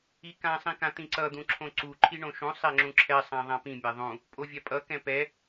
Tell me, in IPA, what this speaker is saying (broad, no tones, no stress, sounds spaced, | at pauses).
i k ã sˤ ĩ k ã t̪ ĩ ǀ ʌ d̪ ũ ǁʰ õ ǀ u ǃʰ i ɳ õ ʃ ũ sˤ e ŋ͡ǁ ũ ǁʰ ɛ sˤ ã ðˤ ã p ĩ mʲ a ðˤ ũ | pʼ o vʲ a pʼ ʌ k ɛ̃ p ɛ